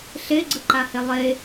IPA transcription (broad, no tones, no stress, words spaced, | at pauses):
ɬeɡ͡ǀɯǃahe lˠe